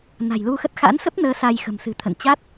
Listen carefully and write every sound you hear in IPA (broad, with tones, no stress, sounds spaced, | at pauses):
n a̤˨˩ j l u˧ x ə˦˥ t̚ x a̰˧˥ n s ə˦˥ p̚ n əː˨˦ s a˧ j x ə̤˨˩ m s ɨ̤˨˩ t̪ʰ ə̰˧˨ n t͡ɕ a˦˥ t̚